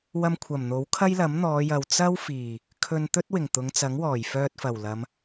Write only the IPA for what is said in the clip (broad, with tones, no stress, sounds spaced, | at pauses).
w ɐ˧ m kʷʰ ɐ˨˩ m n̪ o˨˥ w kʰ ɐ˥ j l ɐ˨˥ m n̪ ɔː˨˧ j ɐ˨ w t͡s ɐ˥ w f iː˨˩ | kʰ ɵ˧ n t̪ ɵ˥ t̚ w ɪ˨˩ ŋ t̪ ʊ˨˧ ŋ t͡s ɐ˨˥ ŋ w ɔː˨˩ j f œː˧ t̚ f ɐ˨˩ w l ɐ˨˧ m